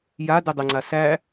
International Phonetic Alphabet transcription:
j a d ɯ dˤ ə ŋ͡ǀ a s æ

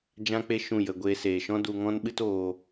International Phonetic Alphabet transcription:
d͡ʒ ã˦ k͡p e˦ ʃ ũ˦˨ j ə˧ ɡʷ eː˧ s eː˨ ʃ ɔ̃˦ d u˧ ŋ ɔ̃˦ n ɓ ɨ˦ t oː˧

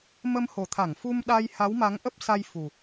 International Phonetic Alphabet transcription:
m ə˧ m h o˨˩ t̪ʰ a˧˩ ŋ f u˧ m ɗ a˧ j h a˨˦ w m a˨˦ ŋ ʔ ə˦˥ p̚ s a˧ j f u˨˩

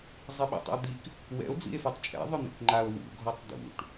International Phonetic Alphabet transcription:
zˤ i ɓ ḭ tˤ ḭ o̯ d̪ i k | w ɛ̰ o̯ d͡z ḭ e̯ f a tˤ t͡ʃʼ ɛ̰ ðˤ ʏ n̪ ḭ k ŋ͡ǃ a o̯ w ṵ ɡʱ ɔ tˤ d̪ ṵ ʈ

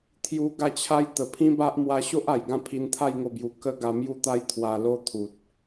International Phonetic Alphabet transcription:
t̪ʰ j u˧ ɡ a˥˧ t͡ɕʰ a˦ j t̪ ə˨˩ pʰ ĩ˦ b a˦ ʔ m w a˧ ɕ o˦ ʔ a˨˩ j ɡ ã˥˧ pʰ i˧ n t̪ʰ a˥˧ j ŋ o˥˧ b j u˧ k ə˦ ɡ a˧ m j u˦ t̪ a˦ j t̪ʰ w a˧ l o˦ t̪ʰ u˨ t̚

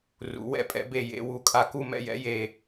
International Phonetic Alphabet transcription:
r ṵ˩˧ w ɛ̰˧˩ pʼ ɛ̰˩˧ b e˧˩ j ḛ˩˧ w u˩˧ kʼ a˧˩ k u˧˩ m ɛ̰˧˩ j ɛ̰˩˧ j e˧˩

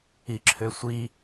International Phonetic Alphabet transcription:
i ǁʰ ø sʷ i

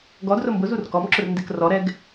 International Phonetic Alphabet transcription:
ɡ ɔ d r ʊ m b ʊ z u r k ɔ m ǁ ʊ r n d e k r ɔ ɾ ɛ ɡ

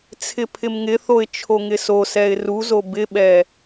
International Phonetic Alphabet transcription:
t͡sʰ ɪ pʰ ɪ m ŋ ɪ θ o ɪ̯ t͡ʃʰ o ŋ ɪ s o s ɛ ɪ̯ r u z o b ɪ ɓ ɛ

